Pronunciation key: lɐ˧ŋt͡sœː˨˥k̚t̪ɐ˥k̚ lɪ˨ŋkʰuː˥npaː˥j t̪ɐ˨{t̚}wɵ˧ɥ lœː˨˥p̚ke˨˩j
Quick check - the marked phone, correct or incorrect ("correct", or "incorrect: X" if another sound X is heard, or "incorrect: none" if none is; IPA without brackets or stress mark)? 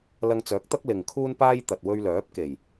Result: correct